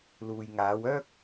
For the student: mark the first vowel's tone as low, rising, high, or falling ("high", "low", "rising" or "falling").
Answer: low